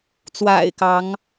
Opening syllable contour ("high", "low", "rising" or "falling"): low